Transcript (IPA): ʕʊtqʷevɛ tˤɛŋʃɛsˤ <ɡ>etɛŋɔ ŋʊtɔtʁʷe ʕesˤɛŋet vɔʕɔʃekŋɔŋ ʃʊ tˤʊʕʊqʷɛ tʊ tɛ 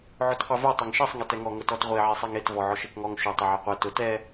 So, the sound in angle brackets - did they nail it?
no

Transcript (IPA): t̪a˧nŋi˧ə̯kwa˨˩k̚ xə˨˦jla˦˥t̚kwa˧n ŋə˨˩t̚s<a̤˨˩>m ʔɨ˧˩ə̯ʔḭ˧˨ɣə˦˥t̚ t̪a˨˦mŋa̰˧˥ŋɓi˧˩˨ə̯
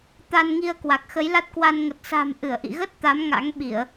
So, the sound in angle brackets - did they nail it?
yes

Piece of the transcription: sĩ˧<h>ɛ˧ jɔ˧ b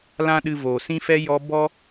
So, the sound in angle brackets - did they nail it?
no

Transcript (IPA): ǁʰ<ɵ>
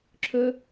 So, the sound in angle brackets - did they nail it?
yes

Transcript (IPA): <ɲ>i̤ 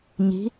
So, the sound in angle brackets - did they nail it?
yes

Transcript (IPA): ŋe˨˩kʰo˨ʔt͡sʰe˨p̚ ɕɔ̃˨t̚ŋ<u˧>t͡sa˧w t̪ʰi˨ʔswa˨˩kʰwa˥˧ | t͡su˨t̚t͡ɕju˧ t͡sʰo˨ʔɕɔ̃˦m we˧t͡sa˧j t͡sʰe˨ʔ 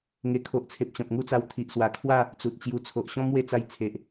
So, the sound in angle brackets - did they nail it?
no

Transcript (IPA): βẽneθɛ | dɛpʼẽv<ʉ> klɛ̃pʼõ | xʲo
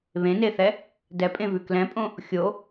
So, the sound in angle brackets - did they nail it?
yes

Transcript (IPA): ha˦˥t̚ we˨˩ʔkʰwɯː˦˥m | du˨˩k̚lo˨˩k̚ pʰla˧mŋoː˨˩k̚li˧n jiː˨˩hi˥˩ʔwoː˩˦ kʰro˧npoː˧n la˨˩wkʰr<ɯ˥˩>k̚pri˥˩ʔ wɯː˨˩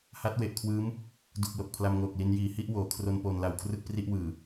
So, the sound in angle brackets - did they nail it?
yes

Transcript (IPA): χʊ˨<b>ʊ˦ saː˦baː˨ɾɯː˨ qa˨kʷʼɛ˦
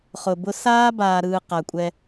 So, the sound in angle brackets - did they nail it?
yes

